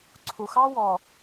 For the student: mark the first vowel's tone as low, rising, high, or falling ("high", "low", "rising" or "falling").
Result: low